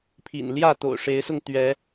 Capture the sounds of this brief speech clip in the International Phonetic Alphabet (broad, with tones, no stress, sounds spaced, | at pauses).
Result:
pʰ ḭ˨˩ n l j ä˥˨ t̪ o̰˨˩ ʊ̯ ʂ e˨˦ ɪ̯ s ʊ˧ ŋ t̪ ɥ ɛ˨˦